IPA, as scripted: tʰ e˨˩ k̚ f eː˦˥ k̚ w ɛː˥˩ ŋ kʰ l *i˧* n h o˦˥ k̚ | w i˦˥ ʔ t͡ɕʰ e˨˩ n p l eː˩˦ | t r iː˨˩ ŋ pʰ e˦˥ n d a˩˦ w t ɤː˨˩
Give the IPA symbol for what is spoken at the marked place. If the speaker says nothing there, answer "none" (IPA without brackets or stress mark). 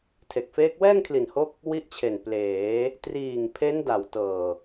i˨˩